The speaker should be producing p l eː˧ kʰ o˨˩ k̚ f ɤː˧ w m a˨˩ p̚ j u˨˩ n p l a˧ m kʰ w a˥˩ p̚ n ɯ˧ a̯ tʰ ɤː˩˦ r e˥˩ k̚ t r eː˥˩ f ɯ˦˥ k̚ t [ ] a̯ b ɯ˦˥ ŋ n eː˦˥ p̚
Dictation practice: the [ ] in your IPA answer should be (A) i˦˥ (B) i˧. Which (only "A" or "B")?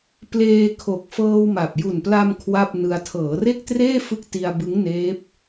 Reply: B